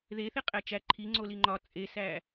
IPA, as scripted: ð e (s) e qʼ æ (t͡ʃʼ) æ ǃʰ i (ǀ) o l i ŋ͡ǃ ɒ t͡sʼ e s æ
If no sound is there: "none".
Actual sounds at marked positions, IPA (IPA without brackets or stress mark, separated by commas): θ, t͡ʃ, ŋ͡ǀ